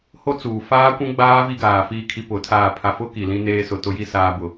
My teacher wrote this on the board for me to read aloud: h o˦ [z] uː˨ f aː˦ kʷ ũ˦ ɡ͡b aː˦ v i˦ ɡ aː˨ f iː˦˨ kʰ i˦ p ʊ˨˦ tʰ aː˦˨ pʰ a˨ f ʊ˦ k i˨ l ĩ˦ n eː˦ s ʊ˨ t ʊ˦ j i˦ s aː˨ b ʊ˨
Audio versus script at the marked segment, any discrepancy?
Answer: yes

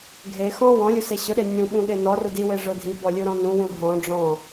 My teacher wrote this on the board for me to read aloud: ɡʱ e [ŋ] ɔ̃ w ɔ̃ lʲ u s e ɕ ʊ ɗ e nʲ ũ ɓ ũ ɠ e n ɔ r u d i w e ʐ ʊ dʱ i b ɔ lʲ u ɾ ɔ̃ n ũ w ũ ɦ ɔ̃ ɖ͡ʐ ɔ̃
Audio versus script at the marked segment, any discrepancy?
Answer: yes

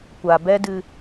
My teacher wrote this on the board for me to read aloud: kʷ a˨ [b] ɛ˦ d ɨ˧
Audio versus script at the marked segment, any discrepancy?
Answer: no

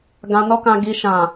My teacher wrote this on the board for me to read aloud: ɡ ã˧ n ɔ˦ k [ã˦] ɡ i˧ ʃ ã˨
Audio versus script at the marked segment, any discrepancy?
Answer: yes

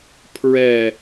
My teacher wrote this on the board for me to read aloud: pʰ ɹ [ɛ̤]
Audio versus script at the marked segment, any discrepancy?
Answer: yes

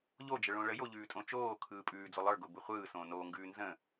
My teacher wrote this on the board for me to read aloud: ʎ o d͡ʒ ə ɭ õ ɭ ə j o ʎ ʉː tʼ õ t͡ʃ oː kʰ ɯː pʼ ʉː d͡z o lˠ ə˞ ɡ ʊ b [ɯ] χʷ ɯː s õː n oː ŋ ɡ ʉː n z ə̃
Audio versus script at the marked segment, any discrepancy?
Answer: no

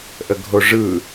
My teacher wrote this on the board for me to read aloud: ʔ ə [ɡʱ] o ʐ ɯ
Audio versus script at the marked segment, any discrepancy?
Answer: no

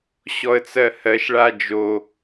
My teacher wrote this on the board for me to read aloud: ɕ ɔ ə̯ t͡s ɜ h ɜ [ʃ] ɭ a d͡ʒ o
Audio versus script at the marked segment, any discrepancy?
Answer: no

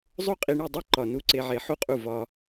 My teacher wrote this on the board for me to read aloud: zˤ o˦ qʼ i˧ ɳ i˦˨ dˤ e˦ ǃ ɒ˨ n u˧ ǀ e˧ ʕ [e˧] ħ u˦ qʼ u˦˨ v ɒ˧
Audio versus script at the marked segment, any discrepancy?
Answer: no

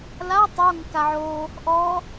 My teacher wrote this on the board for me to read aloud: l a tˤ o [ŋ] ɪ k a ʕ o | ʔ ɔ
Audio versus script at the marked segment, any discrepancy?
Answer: no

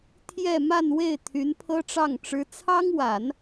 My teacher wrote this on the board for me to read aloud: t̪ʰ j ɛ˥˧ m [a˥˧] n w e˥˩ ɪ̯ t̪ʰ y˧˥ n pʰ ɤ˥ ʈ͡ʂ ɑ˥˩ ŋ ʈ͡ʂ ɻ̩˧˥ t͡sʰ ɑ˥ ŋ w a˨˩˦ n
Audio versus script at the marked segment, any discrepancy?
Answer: no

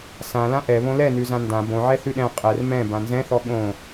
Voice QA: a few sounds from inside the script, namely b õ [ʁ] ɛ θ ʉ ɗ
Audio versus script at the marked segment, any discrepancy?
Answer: yes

